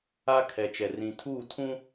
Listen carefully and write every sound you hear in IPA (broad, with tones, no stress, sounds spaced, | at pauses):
a˦ kʰ ɛ˨ t͡ʃ ɛ˨ r ĩ˨ tʰ uː˦˨ tʰ ũ˦